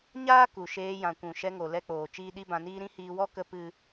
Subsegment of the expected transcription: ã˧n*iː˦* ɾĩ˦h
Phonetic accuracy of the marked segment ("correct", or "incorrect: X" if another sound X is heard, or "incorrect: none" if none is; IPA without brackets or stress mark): correct